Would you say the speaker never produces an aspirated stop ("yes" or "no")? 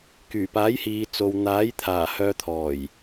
no